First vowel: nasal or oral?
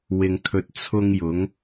oral